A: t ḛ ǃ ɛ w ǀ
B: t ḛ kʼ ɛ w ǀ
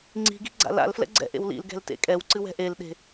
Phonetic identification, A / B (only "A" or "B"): B